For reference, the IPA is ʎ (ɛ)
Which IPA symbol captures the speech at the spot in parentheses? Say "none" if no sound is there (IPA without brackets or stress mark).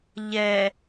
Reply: ɛ